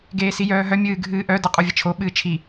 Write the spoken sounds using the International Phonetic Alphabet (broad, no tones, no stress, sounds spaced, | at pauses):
ɡ eː s i j œː ɦ œ mʲ ɨː ɡʱ ɨː ʔ œ d ɐ qʼ u vʲ ə t͡ʃʰ o ɓ ɨː t͡ʃʰ i